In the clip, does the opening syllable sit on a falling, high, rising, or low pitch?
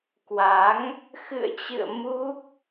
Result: rising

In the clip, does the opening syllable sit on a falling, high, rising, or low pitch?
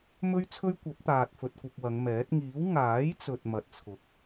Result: high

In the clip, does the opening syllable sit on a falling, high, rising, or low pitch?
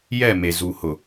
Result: falling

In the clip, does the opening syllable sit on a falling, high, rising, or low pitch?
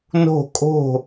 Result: falling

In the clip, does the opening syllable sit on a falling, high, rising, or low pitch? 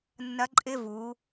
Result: rising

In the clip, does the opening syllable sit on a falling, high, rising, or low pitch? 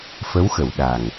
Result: rising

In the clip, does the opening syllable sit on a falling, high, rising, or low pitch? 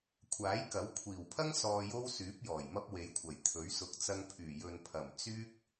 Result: rising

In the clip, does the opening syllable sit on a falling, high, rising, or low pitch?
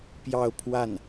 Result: falling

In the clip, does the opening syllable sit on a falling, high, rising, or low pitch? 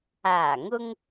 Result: low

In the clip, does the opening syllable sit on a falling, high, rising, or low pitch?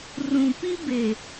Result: low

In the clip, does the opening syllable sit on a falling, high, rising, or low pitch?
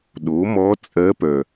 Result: rising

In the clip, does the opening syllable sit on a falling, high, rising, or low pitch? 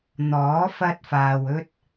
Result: rising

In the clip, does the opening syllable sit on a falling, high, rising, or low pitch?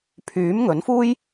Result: rising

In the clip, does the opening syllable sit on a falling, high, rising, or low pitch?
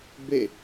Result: falling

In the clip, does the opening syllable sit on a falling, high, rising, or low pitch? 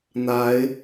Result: rising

